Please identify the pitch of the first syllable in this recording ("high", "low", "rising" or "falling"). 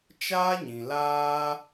high